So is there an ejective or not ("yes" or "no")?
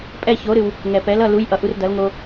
yes